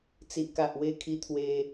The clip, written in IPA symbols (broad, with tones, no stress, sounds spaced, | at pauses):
t͡s i˨ ʔ k a˨ ʔ w e˧ kʰ i˧ t̪ʰ w e˧